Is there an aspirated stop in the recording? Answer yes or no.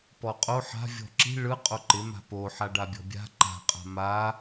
no